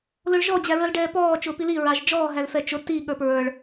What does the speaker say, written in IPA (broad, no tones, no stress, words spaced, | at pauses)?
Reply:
lʊɭʒɔ d͡ʑæɹəl ɖɛːpɔː t͡ʃʊːpili ɹɑʒd͡ʒɔː ɦælfɛt͡ʃʊ ti ɠə˞pɹə˞ɭ